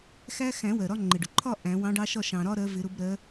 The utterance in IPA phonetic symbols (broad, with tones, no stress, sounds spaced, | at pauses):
x æ˦ x æ̃˨˩˦ w ɜ˩ ɾ ɒ˦ ŋ͡ǃ ɪ˩ ɖ ʊ˩ ǃʰ ɒ˥˨ ʔ æ̃˨˩˦ w ɑ̃˨˥ ɖ ɑ˦ ʃ ɒ˥˨ ʃ ɑ̃˩ ɾ ɒ˦ ɾ ɜ˨˥ v ɪ˨˩˦ ɾ ʊ˨˥ b ɾ ɜ˨˥